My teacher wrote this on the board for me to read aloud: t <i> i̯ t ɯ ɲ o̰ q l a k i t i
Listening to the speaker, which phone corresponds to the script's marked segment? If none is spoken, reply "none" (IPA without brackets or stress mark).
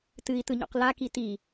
ɨ